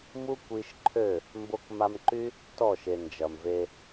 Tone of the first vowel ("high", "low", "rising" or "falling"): high